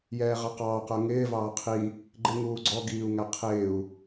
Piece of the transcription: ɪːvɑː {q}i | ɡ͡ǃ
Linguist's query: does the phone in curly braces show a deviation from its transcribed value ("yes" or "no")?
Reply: yes